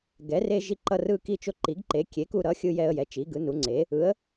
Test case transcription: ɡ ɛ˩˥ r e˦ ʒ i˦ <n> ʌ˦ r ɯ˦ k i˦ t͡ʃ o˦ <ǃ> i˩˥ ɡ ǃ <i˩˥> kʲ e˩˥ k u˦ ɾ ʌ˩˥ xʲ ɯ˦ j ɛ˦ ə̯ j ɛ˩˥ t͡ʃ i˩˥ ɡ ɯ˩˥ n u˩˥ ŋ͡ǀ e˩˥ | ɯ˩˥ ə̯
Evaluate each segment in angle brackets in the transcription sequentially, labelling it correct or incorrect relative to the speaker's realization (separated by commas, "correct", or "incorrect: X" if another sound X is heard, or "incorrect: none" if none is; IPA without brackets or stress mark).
incorrect: ǃ, correct, incorrect: e˩˥